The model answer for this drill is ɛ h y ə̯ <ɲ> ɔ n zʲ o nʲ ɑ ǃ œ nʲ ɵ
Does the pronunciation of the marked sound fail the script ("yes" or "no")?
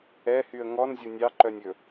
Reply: yes